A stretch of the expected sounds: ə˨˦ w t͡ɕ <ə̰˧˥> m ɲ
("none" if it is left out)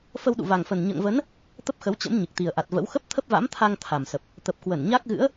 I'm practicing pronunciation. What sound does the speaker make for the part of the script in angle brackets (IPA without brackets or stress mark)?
ə̰˧˥